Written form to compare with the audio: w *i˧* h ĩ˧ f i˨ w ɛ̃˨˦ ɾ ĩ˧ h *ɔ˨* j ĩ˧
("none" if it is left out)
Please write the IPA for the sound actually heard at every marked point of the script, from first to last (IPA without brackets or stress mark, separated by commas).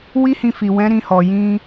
i˦, ɔ˨